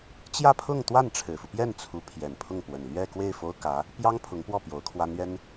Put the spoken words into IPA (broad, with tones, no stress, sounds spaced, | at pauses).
t͡ɕ j ä˥˧ pʰ ʊ˥˧ ŋ t̪ w a˥˩ n ʈ͡ʂʰ ɻ̩˨˩ f u˦ p j ɛ˥˩ n t͡sʰ u˧˥ pʰ j ɛ˨˩ n pʰ ʊ˥˩ ŋ p w ə˨˩ n l ɥ ɛ˥˧ k w e˥˩ ɪ̯ f o˥ ʊ̯ k ä˧˥ | p j ɑ˥ ŋ pʰ ʊ˧˥ ŋ p w ɔ˥˩ p j o˧˥ ʊ̯ kʰ w a˥ n ɥ ɛ˥ n